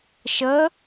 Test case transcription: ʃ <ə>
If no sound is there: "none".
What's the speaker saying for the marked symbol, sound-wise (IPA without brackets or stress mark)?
ə